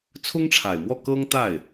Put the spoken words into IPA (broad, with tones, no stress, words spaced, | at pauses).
t͡sʰʊ˥ŋʈ͡ʂʰa˨˩ɪ̯mwɔ˥˩ kɤ˥ŋt̪a˥˩ɪ̯